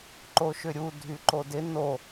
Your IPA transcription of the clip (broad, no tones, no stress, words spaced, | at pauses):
ǃoʃʏɾʲu dʱyǃodɪ no